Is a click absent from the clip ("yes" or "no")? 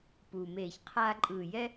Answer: no